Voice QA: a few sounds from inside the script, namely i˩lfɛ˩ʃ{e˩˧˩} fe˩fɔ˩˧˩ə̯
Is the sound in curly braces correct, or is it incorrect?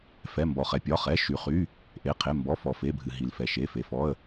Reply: correct